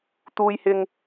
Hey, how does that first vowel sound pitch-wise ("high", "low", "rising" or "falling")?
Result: high